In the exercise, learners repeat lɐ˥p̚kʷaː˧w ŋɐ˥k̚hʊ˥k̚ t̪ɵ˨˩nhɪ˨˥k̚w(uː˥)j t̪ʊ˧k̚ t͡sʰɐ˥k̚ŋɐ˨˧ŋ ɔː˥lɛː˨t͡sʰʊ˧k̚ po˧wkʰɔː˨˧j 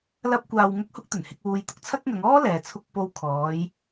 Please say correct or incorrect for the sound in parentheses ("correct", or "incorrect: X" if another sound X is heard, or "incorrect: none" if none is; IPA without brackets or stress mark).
incorrect: uː˧